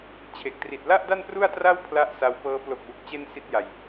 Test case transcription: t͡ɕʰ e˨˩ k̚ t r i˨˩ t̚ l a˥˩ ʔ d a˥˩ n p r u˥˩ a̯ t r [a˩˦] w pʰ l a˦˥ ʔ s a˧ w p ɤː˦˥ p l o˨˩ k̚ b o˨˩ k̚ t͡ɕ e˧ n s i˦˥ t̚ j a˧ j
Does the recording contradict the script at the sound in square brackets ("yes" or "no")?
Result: yes